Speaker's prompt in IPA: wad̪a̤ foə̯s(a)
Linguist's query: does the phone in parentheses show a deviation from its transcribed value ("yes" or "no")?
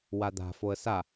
no